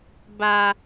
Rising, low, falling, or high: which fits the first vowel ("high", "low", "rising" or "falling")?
low